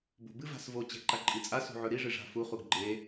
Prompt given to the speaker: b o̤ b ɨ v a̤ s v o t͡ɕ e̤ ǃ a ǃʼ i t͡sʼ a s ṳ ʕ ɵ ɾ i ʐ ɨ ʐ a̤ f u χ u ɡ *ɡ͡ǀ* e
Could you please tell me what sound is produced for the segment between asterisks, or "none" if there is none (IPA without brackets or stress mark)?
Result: ɡ͡ǃ